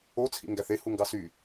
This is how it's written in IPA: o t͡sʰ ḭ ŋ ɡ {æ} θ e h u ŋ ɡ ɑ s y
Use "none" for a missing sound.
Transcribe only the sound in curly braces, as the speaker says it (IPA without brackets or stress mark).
æ